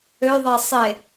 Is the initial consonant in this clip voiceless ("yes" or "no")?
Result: no